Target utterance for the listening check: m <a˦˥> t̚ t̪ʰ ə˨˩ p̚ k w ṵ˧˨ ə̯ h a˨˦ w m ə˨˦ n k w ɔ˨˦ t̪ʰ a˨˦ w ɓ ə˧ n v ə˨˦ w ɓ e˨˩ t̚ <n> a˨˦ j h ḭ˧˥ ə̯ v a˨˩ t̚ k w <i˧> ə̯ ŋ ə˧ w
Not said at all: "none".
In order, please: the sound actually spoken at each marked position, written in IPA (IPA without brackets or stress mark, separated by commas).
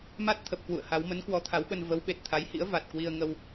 a˦˥, t̪ʰ, i˧